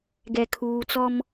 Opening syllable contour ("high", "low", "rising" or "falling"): low